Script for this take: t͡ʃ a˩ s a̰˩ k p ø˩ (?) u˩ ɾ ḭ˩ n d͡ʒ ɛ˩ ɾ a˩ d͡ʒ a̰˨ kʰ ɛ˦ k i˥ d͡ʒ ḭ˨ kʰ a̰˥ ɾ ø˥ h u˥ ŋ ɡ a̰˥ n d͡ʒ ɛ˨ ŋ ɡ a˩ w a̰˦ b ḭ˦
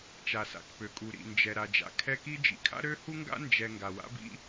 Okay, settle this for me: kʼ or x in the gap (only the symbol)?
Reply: kʼ